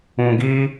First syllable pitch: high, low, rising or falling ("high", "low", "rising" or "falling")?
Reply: low